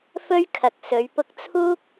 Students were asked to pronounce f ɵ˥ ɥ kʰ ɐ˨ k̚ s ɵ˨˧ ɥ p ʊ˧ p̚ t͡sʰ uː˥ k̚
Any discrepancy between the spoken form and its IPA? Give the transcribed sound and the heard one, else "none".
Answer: p̚ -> k̚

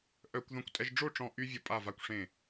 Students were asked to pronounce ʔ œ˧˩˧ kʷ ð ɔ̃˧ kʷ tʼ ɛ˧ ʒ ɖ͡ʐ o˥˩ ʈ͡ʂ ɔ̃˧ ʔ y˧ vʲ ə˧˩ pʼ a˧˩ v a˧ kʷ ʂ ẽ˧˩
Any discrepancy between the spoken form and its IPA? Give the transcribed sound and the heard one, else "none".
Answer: none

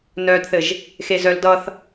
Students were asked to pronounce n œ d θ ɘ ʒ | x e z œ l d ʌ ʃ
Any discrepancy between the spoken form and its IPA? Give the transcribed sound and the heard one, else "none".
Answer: ʃ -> θ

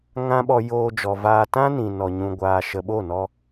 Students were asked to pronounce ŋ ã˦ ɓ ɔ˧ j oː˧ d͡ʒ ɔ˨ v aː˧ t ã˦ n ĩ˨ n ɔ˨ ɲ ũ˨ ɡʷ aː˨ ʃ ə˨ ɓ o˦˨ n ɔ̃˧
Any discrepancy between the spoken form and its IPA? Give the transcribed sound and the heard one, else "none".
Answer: ɔ̃˧ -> ɔ˧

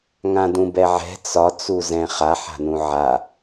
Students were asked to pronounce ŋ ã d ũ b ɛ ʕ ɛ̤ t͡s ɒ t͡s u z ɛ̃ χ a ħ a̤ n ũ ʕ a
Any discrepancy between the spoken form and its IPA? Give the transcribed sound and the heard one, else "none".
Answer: none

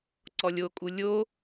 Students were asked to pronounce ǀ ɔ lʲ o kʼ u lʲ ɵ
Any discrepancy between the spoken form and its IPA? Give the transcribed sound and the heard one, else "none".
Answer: ɵ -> o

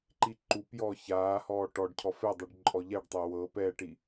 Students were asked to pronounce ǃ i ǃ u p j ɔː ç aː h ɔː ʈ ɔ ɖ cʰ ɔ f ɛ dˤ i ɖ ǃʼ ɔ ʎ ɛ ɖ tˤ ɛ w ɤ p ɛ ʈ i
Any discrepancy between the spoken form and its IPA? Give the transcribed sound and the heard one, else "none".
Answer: none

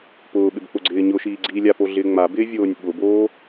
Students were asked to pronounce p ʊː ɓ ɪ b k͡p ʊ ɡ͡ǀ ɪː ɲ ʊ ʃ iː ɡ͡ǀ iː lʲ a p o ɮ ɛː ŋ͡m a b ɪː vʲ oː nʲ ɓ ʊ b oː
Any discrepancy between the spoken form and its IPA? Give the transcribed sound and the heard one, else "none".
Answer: ɛː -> ɪː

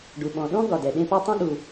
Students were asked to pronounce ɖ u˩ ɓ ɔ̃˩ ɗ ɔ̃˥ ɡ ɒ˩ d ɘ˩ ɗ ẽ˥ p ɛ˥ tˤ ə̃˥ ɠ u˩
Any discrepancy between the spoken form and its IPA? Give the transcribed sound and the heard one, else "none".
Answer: ɘ˩ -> ɛ˩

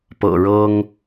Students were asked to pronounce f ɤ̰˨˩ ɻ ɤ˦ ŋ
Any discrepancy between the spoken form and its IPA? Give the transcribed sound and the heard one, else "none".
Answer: f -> p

